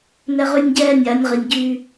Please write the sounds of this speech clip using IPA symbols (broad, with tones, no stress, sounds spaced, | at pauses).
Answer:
n ɛ˦ ʁ y˦ nʲ ɟ ɛː˦ nʲ a˨˦ nʲ ʁ i˨ nʲ ɟ y˦